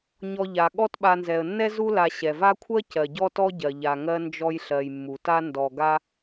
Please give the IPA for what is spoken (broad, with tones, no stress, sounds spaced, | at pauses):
ɲ ɔ˨ ʎ a˩ ɠ ɔ˦ t ɓ a˨ n z ɛ˩ ə̯ nː ɛ˥ z u˥ l a˨ ɕ ɛ˩ v a˦ kʷʰ ɜ˥ c ɜ˩ ɟ ɔ˥ t ɔ˥ ɟ ɜ˩ ʎ a˨ ŋ ɜ˦ n d͡ʒ ɔ˦ j ɬ ɜ˨ j mː u˩ t a˥ n d ɔ˨ ɡ a˥